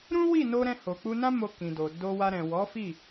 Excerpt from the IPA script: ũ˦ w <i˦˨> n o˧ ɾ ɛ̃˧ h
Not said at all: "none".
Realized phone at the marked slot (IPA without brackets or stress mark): i˦˨